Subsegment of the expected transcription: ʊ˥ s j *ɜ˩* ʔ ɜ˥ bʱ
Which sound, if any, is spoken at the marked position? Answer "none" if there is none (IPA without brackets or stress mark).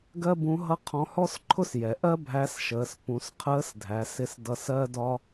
ɛ˩